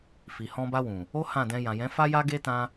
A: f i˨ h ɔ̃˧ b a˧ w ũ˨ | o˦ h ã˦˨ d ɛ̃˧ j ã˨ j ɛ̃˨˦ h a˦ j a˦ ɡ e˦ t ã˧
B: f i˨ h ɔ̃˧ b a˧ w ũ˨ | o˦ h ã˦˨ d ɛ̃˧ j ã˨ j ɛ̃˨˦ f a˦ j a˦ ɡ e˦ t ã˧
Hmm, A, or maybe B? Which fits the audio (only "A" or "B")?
B